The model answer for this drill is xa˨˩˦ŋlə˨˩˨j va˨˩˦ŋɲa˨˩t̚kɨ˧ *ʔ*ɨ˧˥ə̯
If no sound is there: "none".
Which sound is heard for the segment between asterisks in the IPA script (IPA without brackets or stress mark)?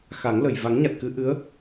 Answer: ʔ